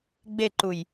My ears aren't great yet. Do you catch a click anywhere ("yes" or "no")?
yes